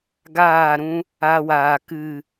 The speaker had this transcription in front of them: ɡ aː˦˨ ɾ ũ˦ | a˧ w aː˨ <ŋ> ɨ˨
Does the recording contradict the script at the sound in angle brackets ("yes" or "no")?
yes